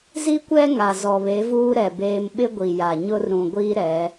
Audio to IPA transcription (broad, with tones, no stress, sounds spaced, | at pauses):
z i˦ kʷ ɛ˦ ŋ a˨ z ɔ˨ β e˨˦ v uː˦ ɾ ɛ˨ b eː˦ m ɓ ɪ˦ ɡʷ i˨ j a˨ ɲ ʊ˦ r ɾ ũ˨ ɡʷ iː˦ ɾ ɛ˨˦